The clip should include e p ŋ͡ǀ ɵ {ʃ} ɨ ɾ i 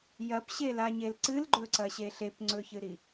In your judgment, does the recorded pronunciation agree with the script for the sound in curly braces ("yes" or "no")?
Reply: no